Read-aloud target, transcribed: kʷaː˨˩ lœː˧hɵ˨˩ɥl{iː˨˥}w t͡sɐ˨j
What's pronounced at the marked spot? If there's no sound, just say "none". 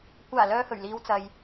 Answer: iː˨˧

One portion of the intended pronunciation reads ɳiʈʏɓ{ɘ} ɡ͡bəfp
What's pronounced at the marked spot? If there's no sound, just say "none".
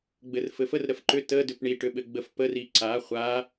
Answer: ɘ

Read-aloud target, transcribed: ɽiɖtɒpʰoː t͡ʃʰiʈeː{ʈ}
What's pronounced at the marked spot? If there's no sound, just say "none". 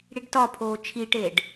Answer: ɖ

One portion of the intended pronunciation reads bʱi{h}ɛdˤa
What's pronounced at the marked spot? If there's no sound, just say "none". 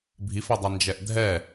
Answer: f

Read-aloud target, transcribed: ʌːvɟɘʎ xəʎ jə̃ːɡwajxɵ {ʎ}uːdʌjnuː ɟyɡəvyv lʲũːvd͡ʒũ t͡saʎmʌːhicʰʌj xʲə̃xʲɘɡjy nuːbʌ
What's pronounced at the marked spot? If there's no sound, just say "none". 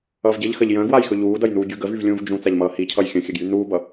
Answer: ʎ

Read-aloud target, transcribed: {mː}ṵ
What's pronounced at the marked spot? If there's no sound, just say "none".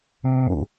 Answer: mː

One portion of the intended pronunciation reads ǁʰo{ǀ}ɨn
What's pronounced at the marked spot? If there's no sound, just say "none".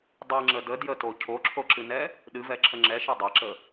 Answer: ǁ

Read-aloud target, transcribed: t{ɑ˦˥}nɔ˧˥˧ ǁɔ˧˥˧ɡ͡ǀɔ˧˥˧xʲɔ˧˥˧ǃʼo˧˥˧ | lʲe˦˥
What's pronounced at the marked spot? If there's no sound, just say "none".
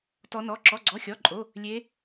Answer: ɔ˦˥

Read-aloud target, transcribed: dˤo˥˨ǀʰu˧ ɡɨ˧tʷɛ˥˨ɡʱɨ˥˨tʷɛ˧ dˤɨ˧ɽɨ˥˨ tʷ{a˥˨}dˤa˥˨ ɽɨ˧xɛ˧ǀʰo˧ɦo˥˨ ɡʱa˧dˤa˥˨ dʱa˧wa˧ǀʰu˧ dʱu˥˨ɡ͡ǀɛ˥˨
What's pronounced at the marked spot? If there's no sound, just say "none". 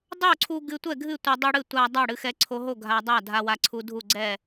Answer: a˧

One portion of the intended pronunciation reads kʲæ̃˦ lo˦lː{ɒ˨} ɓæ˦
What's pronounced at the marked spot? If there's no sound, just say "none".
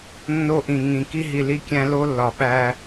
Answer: ɒ˨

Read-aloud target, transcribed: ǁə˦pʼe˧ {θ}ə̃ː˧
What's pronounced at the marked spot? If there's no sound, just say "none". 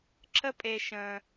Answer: ʃ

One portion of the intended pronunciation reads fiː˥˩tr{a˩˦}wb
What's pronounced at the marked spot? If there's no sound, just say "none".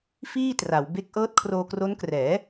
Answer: a˩˦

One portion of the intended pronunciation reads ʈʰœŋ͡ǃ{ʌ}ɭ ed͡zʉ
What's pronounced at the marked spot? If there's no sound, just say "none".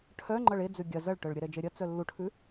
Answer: ʌ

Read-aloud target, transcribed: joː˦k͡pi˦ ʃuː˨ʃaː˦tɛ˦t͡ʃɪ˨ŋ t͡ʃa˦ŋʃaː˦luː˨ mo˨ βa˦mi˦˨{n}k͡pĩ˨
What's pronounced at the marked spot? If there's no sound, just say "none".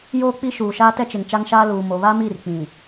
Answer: r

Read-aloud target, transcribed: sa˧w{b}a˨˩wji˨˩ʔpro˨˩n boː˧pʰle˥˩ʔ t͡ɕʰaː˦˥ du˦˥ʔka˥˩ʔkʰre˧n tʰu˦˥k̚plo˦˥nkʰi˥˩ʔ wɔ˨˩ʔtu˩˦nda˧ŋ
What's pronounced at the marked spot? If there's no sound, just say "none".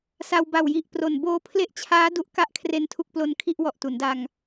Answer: b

